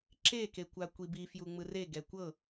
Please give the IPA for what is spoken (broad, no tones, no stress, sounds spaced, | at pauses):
ǁ e k e kʷ a kʷ i b i f j u ŋ͡m ɯ r e ɡ ɛ kʷ ɤ